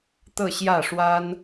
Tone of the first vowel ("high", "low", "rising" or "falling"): falling